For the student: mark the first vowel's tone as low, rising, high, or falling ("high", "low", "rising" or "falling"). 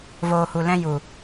low